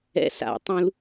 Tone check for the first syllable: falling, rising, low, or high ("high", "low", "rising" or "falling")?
high